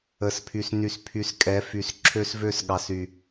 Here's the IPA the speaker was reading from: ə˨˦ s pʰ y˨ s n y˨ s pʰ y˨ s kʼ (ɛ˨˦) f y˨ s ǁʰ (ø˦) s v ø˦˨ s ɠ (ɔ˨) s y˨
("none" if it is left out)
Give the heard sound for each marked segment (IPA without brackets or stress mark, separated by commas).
ɛ˨˦, ø˦, ɑ˨